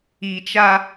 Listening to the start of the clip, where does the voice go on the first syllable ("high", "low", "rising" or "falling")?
low